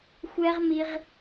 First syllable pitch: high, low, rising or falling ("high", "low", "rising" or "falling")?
high